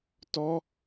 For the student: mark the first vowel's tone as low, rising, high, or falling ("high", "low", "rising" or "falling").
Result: high